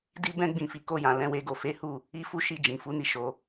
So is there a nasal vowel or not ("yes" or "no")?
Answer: yes